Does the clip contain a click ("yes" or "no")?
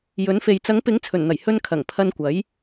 no